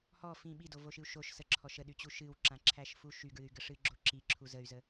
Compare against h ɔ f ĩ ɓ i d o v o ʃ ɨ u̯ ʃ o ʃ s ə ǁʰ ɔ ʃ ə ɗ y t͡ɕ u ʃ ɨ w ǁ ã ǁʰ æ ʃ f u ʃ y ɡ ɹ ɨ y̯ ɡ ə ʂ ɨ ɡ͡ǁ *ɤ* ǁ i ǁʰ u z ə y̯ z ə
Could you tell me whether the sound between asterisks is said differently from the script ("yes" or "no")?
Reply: yes